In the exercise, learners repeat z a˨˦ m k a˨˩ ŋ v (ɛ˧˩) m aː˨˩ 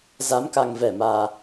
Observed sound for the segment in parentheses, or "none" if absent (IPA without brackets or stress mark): ɛ˧˩